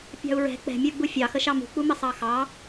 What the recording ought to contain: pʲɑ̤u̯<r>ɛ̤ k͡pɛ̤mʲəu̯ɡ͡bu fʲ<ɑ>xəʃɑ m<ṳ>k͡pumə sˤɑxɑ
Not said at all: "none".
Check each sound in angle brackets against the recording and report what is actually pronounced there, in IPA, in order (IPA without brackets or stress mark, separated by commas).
ɹ, ɑ, ṳ